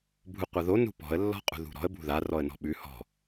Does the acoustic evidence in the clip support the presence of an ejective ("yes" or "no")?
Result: yes